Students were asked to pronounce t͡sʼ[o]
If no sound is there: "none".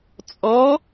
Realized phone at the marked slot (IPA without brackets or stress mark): ɔ